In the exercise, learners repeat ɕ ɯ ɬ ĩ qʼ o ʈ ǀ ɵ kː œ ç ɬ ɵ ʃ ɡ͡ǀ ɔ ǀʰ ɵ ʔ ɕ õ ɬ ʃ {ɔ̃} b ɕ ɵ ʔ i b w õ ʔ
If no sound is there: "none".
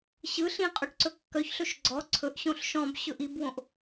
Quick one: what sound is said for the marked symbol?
ɔ̃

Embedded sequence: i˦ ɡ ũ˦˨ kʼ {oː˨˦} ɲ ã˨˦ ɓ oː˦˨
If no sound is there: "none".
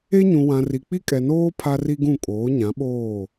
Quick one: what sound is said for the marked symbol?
oː˨˦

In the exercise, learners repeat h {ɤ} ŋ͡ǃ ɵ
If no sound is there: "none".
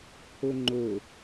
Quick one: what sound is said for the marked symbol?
ɵ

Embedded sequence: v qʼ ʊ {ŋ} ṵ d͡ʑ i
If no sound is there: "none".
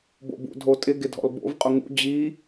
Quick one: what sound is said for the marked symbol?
ŋ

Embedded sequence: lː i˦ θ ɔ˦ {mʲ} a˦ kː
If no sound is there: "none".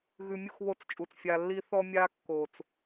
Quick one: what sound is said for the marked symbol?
mʲ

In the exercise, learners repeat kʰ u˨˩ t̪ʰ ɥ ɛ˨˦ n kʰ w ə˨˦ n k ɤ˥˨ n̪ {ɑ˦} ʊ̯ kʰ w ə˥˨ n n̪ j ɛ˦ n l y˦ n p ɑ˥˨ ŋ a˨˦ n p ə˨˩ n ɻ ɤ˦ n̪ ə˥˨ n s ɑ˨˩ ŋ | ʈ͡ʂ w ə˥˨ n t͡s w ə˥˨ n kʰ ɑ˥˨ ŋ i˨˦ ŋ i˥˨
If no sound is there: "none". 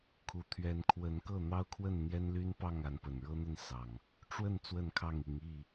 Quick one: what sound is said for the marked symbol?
ɑ˦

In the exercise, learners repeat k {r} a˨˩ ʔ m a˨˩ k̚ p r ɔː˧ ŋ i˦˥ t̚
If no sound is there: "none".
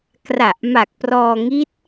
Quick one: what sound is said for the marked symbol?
r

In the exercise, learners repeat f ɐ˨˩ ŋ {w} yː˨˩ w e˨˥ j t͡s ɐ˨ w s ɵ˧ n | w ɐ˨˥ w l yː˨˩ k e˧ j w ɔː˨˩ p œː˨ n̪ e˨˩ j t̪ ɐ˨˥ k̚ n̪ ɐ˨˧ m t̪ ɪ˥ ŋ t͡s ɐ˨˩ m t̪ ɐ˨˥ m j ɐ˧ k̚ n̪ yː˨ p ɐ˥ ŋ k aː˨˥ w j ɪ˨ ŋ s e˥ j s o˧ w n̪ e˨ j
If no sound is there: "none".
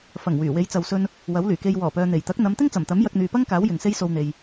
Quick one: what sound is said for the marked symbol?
w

